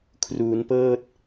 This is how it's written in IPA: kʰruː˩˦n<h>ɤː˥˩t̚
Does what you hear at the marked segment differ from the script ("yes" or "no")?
yes